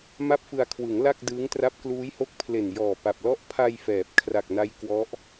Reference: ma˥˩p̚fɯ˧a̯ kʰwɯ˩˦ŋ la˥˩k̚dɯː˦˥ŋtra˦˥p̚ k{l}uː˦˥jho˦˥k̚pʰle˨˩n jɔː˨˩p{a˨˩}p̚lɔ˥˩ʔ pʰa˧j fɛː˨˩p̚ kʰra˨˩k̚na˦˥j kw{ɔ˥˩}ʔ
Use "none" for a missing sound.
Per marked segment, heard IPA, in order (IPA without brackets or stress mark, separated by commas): l, a˨˩, ɔ˦˥